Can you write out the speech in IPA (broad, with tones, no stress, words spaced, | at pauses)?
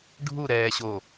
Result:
ɖʱu˦˨ɾɛː˨ ɕo˨